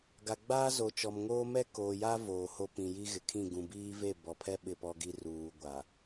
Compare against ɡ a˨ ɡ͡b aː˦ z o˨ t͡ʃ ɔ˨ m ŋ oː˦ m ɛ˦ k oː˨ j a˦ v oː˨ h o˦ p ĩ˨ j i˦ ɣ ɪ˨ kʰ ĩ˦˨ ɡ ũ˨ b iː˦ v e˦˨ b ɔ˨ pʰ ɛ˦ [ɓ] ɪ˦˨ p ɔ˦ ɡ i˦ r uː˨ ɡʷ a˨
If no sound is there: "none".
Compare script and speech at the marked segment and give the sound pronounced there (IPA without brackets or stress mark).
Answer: ɓ